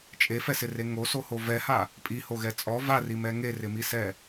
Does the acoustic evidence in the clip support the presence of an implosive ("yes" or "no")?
no